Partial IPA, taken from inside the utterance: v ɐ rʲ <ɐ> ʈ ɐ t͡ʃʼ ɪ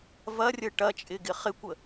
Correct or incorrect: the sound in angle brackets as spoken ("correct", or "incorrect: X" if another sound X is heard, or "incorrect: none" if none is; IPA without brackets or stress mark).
incorrect: ə